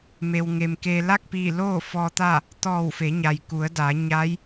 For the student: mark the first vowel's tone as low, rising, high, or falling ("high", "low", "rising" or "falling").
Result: low